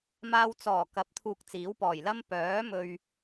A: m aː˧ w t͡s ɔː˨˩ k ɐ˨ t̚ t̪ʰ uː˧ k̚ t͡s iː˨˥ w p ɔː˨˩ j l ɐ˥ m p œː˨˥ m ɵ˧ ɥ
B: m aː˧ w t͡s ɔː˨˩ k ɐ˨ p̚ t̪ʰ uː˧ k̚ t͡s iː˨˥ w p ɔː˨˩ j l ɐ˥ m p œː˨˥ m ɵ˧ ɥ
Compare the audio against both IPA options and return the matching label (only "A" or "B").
B